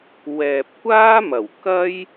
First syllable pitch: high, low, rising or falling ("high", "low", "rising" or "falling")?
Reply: low